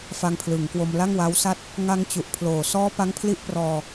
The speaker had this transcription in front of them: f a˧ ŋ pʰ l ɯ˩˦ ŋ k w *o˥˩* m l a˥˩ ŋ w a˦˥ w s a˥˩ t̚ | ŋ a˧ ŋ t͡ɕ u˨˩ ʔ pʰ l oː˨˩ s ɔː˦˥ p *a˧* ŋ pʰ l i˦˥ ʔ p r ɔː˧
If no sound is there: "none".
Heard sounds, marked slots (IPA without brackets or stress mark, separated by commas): o˧, a˦˥